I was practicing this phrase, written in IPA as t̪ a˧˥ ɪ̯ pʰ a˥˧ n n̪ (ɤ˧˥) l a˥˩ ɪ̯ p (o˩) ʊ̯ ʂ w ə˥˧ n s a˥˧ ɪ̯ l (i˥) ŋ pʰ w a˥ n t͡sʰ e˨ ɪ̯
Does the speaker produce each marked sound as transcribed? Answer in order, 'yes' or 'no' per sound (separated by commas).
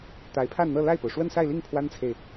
no, yes, no